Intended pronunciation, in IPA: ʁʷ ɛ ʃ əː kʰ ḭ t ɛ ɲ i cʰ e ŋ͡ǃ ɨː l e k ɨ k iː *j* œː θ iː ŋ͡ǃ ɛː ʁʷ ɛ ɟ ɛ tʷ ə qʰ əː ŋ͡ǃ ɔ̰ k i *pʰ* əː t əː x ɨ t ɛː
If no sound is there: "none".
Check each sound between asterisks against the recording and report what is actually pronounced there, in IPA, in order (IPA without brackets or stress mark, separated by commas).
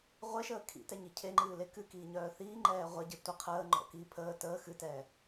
ɲ, pʰ